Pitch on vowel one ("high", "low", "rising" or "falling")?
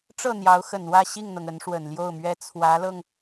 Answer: falling